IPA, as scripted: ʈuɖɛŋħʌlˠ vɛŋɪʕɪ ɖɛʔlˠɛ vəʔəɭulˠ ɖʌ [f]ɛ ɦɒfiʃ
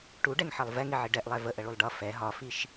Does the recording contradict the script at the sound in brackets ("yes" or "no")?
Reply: no